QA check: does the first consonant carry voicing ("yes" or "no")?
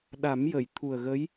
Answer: yes